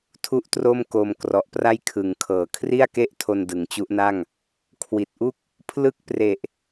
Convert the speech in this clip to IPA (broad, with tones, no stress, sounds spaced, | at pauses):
tʰ u˥˩ ʔ t r o˥˩ m k o˧ m k r ɔ˨˩ ʔ p r a˥˩ j kʰ ɯ˩˦ ŋ kʰ ɤː˨˩ kʰ r i˥˩ a̯ k e˥˩ ʔ tʰ o˧ n d ɯ˩˦ ŋ t͡ɕ u˦˥ ʔ n a˥˩ ŋ | kʰ w i˨˩ t̚ ʔ u˥˩ k̚ | pʰ l ɯ˥˩ k̚ p r e˨˩ ʔ